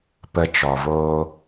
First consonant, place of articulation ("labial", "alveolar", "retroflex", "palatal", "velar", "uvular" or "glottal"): labial